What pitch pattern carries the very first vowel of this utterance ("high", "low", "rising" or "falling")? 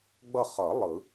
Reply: falling